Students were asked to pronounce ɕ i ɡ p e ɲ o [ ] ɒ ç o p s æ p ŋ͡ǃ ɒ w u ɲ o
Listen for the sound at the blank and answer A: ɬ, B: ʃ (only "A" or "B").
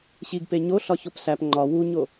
A